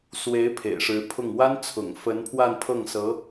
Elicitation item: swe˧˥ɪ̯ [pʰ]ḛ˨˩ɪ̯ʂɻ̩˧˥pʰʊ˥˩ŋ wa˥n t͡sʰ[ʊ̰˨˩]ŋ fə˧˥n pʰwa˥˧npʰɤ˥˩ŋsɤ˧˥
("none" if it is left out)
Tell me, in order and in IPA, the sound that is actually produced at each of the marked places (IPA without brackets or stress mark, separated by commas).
pʰ, ʊ̰˨˩